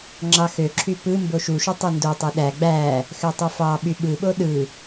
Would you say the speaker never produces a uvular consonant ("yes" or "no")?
yes